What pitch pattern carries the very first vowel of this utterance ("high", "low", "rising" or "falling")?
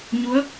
rising